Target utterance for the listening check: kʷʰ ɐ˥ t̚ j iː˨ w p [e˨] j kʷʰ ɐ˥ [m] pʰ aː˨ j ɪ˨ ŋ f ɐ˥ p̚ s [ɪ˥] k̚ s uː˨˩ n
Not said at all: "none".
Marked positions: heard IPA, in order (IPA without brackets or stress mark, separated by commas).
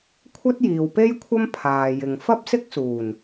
e˥, m, ɪ˥